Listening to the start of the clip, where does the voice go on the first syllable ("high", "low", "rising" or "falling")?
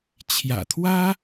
low